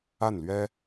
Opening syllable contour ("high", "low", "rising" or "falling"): falling